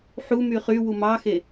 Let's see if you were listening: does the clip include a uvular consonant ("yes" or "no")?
yes